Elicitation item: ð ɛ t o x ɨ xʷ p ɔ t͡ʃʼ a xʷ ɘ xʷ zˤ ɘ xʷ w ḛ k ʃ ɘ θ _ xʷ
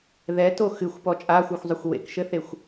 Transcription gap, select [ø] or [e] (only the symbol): e